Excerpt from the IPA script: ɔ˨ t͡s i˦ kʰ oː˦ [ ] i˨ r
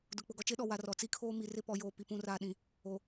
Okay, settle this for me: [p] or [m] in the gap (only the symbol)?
m